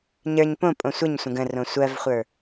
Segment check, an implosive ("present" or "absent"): absent